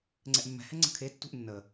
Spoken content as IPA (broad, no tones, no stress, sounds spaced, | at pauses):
ŋ͡ǀ ɛ ʔ mː ɛ̤ h ɛ ŋ͡ǀ ə̤ kʰ e tː ṳ ʔ nː ə